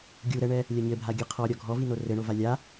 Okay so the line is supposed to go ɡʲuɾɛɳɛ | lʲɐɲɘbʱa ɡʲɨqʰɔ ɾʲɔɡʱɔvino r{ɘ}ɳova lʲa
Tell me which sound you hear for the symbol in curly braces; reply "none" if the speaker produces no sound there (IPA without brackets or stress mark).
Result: ɘ